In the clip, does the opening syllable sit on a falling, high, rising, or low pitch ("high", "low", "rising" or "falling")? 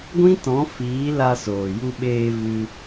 high